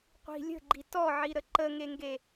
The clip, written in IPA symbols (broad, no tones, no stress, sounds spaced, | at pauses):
qʷ i̤ lʲ ə̤ ɡ͡ǃ i t ɔ ʕ i ɾ ə ǃ ə ŋ e ŋ ɡ e